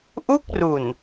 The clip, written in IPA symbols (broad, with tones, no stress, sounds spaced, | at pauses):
ʔ u˥˩ k̚ r u˨˩ n